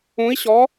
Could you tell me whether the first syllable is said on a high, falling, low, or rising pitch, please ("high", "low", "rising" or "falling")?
rising